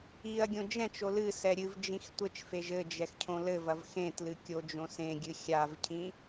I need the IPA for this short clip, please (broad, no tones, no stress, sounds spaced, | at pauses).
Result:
i ɐ̯ ɡʲ õ d͡ʒ ɛ̃ t͡ʃ o l ɨ s ɛ ɾʲ ɨ v d͡ʒ ĩ x tʷ ɘ t͡ʃ f e ʒ ɘ d͡ʒ ɛ x cʰ õ l ɘ v ɐ v x ẽ t l ɨ kʲ o d͡ʒ õ s ẽ ɡʲ ɨ xʲ a v cʰ ĩ